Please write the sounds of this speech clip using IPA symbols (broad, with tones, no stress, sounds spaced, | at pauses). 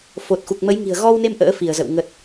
f o˨˩ t̚ x u˨˩ k̚ m ə˨˦ j ŋ i̤˨˩ ə̯ ɣ ɔ˧ w n e˧ m ʔ ə̰ː˧˥ f i˧˩ ə̯ z ə̰˧˨ w ŋ ə˨˩ t̚